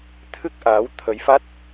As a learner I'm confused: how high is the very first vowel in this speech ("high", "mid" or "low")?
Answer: high